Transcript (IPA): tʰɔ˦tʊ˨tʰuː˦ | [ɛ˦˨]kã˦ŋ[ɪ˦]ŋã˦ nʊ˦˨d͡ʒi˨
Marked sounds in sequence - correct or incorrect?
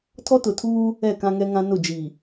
correct, incorrect: ɛ˦

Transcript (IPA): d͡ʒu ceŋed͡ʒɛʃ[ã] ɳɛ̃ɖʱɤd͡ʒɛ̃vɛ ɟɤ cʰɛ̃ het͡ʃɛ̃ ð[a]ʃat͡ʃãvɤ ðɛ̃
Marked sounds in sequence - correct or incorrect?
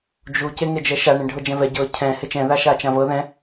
incorrect: a, correct

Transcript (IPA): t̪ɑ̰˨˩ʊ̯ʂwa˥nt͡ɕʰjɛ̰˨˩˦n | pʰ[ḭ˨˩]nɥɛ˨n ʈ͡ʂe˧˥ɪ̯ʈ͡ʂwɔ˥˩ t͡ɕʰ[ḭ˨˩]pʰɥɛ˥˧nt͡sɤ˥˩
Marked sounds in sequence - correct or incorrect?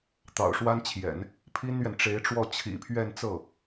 incorrect: i˥, correct

